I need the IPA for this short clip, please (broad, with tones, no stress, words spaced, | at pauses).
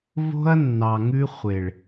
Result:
vo̤˦ɐ̯nːɑ˨ŋʉ˦χʷe˨ɭ